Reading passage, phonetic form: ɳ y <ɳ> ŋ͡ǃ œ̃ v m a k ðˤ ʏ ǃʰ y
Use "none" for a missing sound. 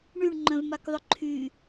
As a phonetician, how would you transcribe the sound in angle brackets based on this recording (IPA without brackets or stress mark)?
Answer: ɳ